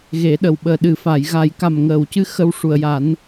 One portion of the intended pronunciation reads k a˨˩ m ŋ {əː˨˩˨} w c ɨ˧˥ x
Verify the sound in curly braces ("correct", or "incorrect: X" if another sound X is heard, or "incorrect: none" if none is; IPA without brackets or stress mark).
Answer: correct